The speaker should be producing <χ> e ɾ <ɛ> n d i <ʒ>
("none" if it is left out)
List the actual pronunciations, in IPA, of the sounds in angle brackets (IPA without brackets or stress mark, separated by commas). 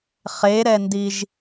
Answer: χ, ɛ, ʒ